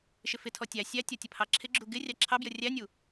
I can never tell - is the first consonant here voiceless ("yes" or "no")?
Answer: yes